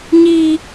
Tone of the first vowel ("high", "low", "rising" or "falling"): low